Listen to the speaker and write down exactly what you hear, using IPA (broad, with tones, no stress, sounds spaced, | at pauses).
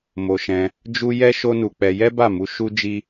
m o˧ ʃ ɛ̃˧ | d͡ʒ u˦ j ɛ˦ ʃ o˦ n u˧ k͡p ɛ˧ j ɛ˦ b a˦˨ m u˨˦ ʃ u˦ d͡ʒ i˦